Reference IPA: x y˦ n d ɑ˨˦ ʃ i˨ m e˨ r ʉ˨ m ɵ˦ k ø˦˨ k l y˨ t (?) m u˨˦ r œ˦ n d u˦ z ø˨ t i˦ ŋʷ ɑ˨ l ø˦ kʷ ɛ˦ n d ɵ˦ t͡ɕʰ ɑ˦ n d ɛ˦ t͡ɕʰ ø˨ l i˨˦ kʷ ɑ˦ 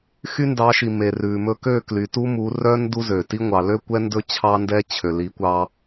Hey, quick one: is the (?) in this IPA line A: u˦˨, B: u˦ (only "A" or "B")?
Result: B